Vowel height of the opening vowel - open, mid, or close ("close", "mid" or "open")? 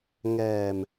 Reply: mid